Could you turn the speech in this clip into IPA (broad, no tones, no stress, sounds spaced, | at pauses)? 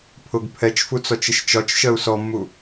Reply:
pʰ ʊ ɡ pʰ ɛ t͡ʃ f u t͡s ɔ t͡ʃ ɪ ʃ t͡ʃ ɒ t͡ʃ ʃ ɜ u̯ s ɔ mː u